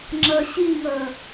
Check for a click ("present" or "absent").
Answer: present